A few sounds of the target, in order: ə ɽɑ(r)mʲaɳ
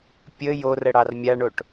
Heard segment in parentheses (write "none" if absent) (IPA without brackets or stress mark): r